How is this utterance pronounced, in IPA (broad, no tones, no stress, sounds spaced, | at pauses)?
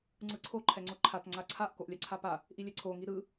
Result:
ŋ͡ǀ ɯ ǀʰ o ǃʰ ɛ ŋ͡ǀ o ǃʰ a t ŋ͡ǀ a ǀʰ a ʔ k o ʔ lʲ a ǀʰ a p a | ʔ i lʲ ɛ ǀʰ o ŋ i ɾ ɯ